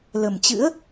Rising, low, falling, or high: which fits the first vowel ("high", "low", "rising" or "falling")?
low